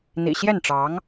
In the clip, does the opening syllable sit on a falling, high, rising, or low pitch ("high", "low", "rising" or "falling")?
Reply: low